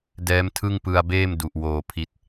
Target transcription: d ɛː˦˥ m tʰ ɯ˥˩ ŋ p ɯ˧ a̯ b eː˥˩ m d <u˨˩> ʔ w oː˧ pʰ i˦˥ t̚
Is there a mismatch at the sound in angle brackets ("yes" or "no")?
no